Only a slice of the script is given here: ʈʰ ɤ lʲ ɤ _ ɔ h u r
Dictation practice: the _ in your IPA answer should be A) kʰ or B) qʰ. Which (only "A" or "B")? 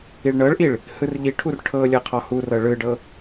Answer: B